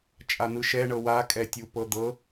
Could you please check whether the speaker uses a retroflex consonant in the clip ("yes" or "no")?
yes